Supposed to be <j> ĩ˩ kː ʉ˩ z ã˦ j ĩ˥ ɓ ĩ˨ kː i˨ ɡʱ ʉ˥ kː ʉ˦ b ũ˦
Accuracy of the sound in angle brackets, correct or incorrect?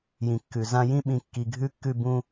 correct